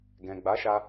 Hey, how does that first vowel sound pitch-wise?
low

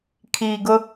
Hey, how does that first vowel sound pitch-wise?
low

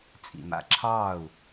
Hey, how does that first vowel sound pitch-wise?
low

